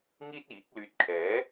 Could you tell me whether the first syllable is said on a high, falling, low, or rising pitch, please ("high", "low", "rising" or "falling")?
high